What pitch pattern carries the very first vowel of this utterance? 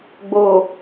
low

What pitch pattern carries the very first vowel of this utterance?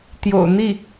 low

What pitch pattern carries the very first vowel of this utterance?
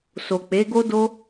low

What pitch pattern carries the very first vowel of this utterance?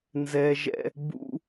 high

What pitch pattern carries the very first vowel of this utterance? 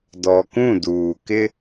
low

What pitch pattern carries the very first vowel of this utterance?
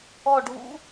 falling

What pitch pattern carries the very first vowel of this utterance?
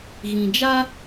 low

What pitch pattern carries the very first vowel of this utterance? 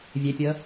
rising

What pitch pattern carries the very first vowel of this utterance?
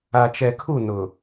low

